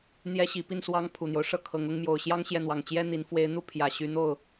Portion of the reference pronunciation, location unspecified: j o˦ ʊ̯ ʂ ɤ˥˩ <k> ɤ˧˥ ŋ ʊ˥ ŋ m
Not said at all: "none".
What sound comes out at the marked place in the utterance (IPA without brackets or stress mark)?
kʰ